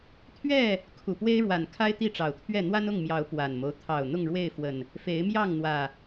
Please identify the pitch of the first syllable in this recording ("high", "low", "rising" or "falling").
falling